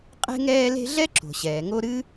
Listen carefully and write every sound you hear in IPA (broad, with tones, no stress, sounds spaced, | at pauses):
qʼ e̤˦ ŋ ɛː˦ l e̤˦ ɮ ɛ˥ ǁ o̤˩ ɕ ɛː˩ ŋ o˦ ɾ ɨː˥